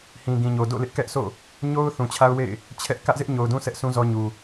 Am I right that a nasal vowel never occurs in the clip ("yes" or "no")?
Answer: no